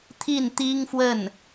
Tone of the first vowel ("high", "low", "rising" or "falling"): falling